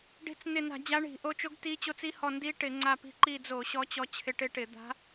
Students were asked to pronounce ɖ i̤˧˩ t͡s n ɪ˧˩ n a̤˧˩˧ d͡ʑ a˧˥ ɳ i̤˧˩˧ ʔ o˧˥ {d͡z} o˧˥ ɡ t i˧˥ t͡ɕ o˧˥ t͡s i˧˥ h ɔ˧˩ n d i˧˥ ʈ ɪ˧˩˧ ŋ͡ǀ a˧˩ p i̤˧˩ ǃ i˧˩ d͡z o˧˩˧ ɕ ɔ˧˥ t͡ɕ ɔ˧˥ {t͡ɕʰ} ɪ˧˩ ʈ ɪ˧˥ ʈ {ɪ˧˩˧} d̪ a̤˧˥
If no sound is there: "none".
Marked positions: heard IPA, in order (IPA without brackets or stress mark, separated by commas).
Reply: t͡ʃ, t͡ɕʰ, ɪ˧˩˧